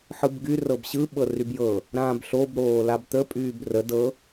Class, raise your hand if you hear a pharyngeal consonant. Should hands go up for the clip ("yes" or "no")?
yes